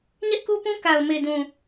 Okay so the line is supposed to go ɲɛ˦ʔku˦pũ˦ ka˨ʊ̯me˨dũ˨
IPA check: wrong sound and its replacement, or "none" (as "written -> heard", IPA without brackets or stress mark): none